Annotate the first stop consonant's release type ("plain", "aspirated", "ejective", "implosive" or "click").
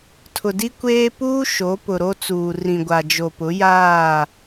aspirated